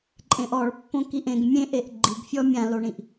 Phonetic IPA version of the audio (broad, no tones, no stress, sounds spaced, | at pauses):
ǃʼ ẽ ʔ ɔ ɭ pː õ k i ʔ ẽ ɡ mʲ ẽ ʔ e ʔ ɡ͡ǃ i ɡ fʲ ɔ mʲ ã l o ɳ ĩ ʔ